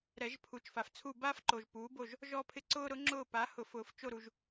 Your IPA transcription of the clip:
ɾ ɛ˨˩˦ ʒ pʰ u˩˥ t͡ʃ f a˨ f t͡sʰ u˦˨ b aː˦ f ǃ o˨ ʒ p uː˩˥ b o˦˨ ʒ | ʒ ɔ˦ pʰ ɪ˦ ǀ ʊː˦ ɾ ʊ˩˥ ŋ͡ǁ ʊː˦˨ p a˩˥ h ʊ˨˩˦ f ʊː˨ f t͡ʃ o˦˨ ɾ u˨ ʒ

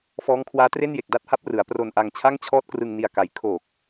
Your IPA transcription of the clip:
f ɔː˦˥ ŋ kʰ w aː˦˥ t r e˥˩ n j e˨˩ k̚ d a˥˩ t̚ h a˥˩ p̚ r ɯ˩˦ a̯ p r o˧ n ʔ a˧ ŋ t͡ɕʰ a˥˩ ŋ t͡ɕʰ ɔː˥˩ t̚ k r ɯ˧ ŋ n i˧ a̯ k a˧ j kʰ o˨˩ k̚

